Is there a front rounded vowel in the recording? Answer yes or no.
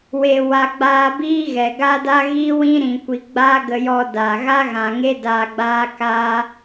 no